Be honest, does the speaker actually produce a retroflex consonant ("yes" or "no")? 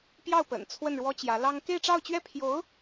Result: yes